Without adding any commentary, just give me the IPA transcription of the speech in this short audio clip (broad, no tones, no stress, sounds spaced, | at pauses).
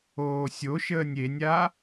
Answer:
oː sʲ o ʃ əː nʲ e nʲ a